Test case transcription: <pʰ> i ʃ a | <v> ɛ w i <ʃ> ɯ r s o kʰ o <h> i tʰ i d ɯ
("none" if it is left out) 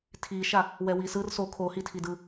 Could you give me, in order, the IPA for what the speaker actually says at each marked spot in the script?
tʰ, w, s, h

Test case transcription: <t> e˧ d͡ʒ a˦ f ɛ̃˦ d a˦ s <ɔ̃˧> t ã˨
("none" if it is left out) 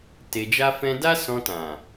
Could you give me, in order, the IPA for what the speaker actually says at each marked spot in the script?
t, ɔ̃˧

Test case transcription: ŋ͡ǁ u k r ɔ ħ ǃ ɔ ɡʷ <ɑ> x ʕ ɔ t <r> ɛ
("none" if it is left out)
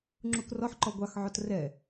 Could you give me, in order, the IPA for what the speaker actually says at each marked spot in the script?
ɑ, r

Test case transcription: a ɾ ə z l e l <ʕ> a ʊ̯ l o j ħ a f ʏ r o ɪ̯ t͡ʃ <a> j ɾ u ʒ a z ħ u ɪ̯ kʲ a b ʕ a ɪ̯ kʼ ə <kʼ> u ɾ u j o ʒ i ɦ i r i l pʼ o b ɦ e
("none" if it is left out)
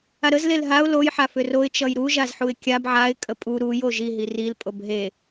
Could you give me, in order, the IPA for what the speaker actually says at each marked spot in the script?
ɦ, ʌ, pʼ

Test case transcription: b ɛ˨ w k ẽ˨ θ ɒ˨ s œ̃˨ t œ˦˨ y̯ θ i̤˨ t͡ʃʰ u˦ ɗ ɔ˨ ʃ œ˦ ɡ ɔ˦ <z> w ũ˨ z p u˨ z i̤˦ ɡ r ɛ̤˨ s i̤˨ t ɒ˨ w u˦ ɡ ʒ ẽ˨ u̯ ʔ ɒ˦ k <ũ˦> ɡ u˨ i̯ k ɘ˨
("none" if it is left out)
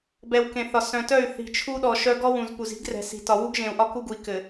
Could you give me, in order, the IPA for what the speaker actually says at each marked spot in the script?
none, u˦

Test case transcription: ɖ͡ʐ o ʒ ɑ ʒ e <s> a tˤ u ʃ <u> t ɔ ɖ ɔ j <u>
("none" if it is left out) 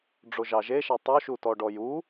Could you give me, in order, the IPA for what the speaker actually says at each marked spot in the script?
ʃ, u, u

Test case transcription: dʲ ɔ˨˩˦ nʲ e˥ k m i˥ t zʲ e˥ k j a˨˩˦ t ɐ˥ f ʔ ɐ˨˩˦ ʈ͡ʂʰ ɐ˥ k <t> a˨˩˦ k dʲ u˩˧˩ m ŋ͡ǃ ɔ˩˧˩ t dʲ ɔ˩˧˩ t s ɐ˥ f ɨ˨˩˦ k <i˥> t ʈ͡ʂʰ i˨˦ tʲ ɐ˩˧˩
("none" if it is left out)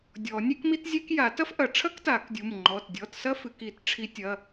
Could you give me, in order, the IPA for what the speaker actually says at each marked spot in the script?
t, i˨˩˦

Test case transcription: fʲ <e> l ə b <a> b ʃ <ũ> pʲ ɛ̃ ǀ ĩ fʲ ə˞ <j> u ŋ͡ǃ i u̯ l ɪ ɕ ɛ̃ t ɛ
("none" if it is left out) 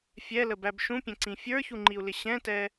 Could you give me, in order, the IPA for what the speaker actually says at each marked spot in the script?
ɛ, æ, ũ, ç

